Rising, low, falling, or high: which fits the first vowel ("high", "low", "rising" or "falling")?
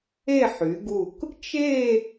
falling